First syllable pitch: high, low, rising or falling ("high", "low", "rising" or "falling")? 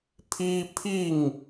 high